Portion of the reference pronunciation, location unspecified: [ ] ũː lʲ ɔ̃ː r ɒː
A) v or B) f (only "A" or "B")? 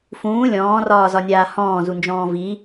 B